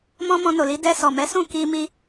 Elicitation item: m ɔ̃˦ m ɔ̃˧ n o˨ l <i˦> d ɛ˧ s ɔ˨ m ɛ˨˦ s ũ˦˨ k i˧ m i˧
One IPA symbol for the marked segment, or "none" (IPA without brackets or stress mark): i˨˦